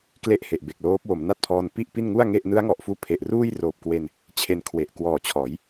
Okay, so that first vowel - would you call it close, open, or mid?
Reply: mid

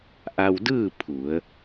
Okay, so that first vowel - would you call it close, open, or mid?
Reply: open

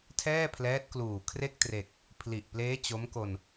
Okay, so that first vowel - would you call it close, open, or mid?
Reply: mid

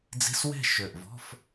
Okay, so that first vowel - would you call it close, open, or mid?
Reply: close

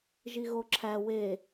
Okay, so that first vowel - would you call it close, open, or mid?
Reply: close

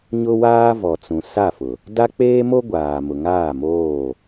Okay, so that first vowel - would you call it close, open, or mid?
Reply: close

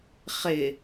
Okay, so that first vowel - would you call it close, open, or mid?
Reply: close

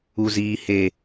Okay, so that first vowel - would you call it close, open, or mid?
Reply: close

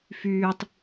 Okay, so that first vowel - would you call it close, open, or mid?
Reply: close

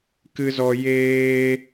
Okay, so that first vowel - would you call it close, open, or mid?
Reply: close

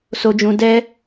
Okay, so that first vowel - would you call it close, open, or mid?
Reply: mid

